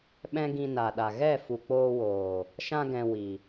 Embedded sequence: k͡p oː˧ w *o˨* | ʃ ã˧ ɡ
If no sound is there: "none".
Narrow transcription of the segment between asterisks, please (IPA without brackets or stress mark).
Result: oː˨